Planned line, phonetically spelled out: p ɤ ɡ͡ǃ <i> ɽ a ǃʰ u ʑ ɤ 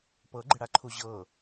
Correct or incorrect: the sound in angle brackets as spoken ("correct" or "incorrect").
incorrect